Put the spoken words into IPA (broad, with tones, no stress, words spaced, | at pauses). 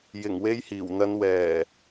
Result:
jɪ˨˩ŋwe˨˧j hiː˨˩wn̪ɐ˨˧n wɛː˨˩